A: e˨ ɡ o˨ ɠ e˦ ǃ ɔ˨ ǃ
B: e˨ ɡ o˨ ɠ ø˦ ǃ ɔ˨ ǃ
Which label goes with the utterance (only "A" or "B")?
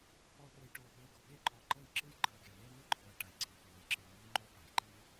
A